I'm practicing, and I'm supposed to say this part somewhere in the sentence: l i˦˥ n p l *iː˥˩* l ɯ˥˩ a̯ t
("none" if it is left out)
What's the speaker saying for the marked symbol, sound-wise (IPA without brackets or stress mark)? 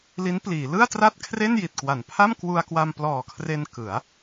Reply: iː˩˦